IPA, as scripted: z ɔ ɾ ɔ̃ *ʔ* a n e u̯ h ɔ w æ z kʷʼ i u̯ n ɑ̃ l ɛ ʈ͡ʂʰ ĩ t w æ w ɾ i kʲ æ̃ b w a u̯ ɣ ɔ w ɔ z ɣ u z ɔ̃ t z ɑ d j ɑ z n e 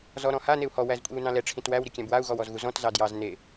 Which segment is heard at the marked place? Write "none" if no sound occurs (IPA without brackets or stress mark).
h